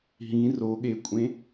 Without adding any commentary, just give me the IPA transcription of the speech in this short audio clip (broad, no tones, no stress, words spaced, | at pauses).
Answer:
ɦĩ roɠekʷʼẽ